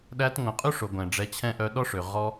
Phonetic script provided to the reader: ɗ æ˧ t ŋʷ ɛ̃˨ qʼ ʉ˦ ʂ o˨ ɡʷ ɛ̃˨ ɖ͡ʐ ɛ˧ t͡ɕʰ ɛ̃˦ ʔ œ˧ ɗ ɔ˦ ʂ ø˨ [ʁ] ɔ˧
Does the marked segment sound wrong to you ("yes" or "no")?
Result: no